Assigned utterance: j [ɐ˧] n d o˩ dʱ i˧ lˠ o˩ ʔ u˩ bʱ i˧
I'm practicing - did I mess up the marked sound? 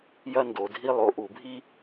no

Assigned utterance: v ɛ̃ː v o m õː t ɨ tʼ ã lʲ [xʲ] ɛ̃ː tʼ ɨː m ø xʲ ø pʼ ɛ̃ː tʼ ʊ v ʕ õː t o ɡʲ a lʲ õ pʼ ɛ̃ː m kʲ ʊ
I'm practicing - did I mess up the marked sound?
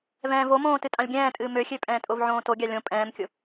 yes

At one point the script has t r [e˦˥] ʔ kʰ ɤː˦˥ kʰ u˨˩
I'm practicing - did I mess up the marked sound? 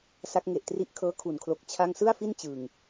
yes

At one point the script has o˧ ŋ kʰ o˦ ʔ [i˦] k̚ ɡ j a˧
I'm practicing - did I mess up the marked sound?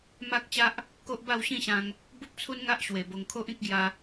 yes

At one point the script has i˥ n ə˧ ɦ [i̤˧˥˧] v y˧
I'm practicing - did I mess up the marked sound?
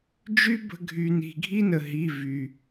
yes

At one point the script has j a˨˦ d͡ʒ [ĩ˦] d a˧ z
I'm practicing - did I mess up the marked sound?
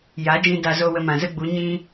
yes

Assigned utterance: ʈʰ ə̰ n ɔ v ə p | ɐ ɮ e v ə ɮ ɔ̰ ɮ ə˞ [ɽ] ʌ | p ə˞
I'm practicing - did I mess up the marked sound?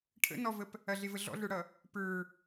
no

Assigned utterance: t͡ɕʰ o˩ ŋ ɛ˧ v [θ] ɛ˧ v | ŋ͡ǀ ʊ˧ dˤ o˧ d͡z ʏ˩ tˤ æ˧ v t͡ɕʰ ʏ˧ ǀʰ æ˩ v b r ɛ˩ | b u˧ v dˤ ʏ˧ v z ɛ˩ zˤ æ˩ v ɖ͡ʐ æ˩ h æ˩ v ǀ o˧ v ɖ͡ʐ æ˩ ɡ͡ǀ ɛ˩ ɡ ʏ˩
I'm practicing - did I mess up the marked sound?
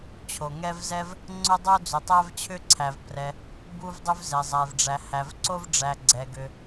yes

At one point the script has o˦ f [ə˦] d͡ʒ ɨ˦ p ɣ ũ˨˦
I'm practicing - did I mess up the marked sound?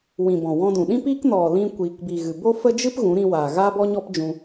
no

